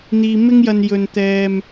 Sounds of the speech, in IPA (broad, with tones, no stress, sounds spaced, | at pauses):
n̪ iː˧ m ɪ˥ ŋ j ɐ˧ n j ɵ˨ n t̪ ɛː˨ m